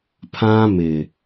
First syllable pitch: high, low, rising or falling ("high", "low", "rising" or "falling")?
high